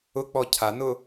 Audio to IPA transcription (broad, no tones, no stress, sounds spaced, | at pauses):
ʊ k͡p ɔ cʰ a n ʊ